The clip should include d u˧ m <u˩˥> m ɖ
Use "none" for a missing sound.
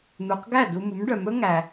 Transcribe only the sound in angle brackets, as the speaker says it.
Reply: u˩˥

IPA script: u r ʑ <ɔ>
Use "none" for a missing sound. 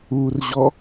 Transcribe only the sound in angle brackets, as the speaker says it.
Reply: ɔ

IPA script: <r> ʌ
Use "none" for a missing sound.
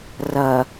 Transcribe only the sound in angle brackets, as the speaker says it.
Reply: r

